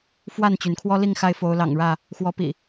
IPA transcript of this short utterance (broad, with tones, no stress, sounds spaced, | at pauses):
f w a˥˨ n t͡ɕ y˩ n kʰ w ɔ˦ l i˥˨ ŋ x a˥˨ ɪ̯ f o˨˦ ʊ̯ l ɑ̰˨˩ ŋ ɻ ä˥˨ | x w ɔ˨˦ p ḭ˨˩